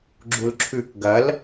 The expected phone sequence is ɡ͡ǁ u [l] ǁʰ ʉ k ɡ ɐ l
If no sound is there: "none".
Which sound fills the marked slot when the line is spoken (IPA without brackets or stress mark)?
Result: l